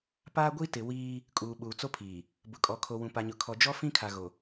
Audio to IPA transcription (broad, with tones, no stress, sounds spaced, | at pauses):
p aː˦ ɡʷ i˦ t ɪ˨ w iː˦ | kʼ uː˨ ɓ uː˨ t͡s o˦ pʰ iː˨ | b ʊ˨ kʼ ɔ˨ kʰ o˨ w ũ˨ p a˨ ɲ ʊ˨ kʰ ɔ˨ d͡ʒ ɔ˦ f ĩ˦ kʰ a˨ ɣ o˨